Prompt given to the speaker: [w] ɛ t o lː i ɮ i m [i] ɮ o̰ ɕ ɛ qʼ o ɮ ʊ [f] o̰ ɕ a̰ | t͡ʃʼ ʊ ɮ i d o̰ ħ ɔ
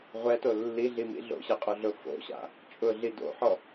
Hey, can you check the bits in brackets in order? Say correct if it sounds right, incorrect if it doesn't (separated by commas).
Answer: incorrect, incorrect, correct